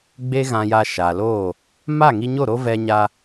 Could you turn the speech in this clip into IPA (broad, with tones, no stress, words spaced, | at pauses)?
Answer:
ɡ͡be˦ɣã˧ja˧ ʃa˨loː˦˨ | ma˦˨ŋi˧ɲo˦˨ ɾo˦ vɛ˧ɲa˧